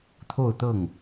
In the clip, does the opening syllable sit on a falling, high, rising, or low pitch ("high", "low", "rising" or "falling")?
falling